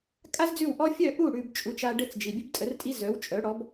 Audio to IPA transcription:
kʼ a˥ z d͡z ʉ˥˩ w ʔ ɔ˥ fʲ œ˥˩ ʔ u˥˩ ɽ ʉ˧ b t͡ʃʼ u˩˥ t͡ʃ a˧ ɖ ɘ˥˩ t͡s d͡ʒ i˩ bʲ ɘ˥ b tʼ ə˩˥ r tʼ i˥ z œ˩˥ w t͡ʃʼ œ˩˥ ɽ ɔ˩˥ b

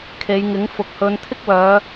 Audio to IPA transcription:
kʰ e˨˧ j ŋ ɪ˨˥ ŋ f ʊ˨ k̚ h ɵ˨˧ n t̪ʰ ɪ˥ k̚ w œː˨˧

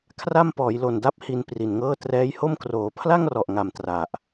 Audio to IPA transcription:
kʰ r a˥˩ m p ɔː˩˦ j l o˨˩ n d a˦˥ p̚ h i˧ n p r i˨˩ n ŋ ɤː˥˩ t r ɛː˦˥ j h o˥˩ m k r oː˩˦ pʰ l a˥˩ ŋ r ɔ˨˩ ʔ ŋ a˨˩ m t r a˨˩ ʔ

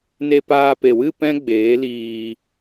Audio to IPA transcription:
n e˧ p aː˧ p e˨ w ɨ˦˨ p ɛ̃˦ ɡ͡b eː˨˦ l iː˧

